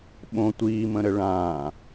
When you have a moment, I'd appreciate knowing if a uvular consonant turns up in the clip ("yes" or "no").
no